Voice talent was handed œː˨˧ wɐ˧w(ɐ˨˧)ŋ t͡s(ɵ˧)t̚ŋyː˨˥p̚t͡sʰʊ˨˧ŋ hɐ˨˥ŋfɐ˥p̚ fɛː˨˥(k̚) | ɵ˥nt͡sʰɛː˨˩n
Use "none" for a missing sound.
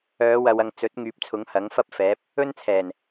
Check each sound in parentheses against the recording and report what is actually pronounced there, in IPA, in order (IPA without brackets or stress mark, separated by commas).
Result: ɐ˧, ɵ˨˥, p̚